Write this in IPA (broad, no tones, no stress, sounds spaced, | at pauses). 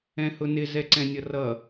ɛ̃ h ʊ n ɪ z ɛ ǀ ɛ̃ nʲ ʌ r ʌ